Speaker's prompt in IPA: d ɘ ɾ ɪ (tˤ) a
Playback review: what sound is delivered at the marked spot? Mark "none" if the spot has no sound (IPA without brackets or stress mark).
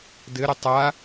tˤ